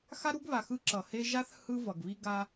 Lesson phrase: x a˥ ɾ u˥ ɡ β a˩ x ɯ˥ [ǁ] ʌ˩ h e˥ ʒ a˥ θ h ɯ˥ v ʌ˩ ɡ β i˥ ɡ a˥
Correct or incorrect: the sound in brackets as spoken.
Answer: correct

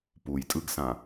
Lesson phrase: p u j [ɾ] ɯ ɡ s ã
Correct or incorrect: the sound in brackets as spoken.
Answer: incorrect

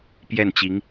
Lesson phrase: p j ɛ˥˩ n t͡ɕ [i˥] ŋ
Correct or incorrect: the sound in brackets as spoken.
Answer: incorrect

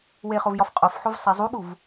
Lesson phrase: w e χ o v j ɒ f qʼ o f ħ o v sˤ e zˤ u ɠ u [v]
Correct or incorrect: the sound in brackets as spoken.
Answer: correct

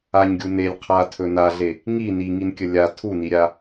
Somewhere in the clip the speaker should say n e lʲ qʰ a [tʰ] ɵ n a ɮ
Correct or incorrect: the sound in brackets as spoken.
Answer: correct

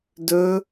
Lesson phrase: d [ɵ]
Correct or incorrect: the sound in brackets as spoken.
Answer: correct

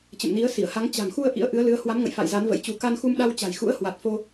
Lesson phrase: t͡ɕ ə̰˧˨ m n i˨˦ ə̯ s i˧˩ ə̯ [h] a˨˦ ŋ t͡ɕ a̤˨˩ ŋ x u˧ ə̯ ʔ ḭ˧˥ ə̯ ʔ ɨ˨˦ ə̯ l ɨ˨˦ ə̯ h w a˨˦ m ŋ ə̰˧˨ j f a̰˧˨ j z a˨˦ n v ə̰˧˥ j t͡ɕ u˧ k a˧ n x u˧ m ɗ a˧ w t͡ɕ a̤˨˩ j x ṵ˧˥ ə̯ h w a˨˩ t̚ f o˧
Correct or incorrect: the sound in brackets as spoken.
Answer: correct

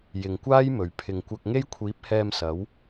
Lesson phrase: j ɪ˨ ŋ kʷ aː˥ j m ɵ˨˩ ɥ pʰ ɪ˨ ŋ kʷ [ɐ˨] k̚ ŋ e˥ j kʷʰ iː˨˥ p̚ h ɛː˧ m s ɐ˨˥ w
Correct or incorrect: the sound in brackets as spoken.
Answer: incorrect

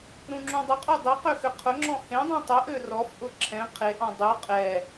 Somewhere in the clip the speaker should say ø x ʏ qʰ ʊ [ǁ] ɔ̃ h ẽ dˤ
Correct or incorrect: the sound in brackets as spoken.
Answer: incorrect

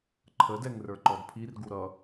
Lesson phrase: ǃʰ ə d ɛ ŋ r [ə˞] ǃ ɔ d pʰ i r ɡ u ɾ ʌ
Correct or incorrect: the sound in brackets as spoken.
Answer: correct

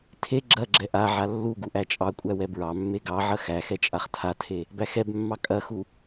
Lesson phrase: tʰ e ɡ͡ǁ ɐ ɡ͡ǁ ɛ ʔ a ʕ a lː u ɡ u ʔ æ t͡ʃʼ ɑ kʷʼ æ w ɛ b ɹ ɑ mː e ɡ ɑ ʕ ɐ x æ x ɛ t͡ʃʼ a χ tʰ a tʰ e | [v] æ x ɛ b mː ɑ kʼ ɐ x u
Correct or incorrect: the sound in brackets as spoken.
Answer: incorrect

